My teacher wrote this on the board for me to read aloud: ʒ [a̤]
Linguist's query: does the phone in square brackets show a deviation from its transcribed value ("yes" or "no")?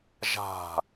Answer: no